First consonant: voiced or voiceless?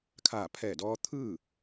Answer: voiceless